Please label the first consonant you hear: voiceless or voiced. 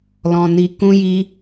voiced